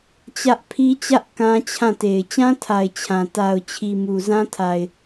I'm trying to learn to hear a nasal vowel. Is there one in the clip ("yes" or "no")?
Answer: yes